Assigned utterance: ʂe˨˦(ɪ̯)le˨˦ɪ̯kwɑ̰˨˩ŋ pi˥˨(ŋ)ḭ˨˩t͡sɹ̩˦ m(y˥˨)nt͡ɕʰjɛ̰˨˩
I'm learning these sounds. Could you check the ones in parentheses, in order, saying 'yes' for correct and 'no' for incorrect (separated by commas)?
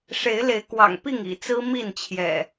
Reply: yes, yes, no